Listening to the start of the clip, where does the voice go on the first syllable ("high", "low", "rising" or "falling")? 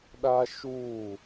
high